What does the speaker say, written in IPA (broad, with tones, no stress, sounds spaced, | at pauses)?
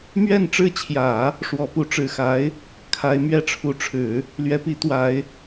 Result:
m ɥ ɛ˥˧ n ʈ͡ʂ ɻ̩˥˩ t͡ɕʰ j ä˨˩˦ | ʂ w ɔ˧˥ p u˧˥ ʈ͡ʂ ɻ̩˨˩ x a˧˥ ɪ̯ | kʰ a˧˥ ɪ̯ m ɥ ɛ˥˩ ʈ͡ʂʰ u˧˥ ʈ͡ʂʰ ɻ̩˨˩˦ | l ɥ ɛ˧˥ p i˧˥ t̪ w a˧˥ ɪ̯